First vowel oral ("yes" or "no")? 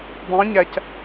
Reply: no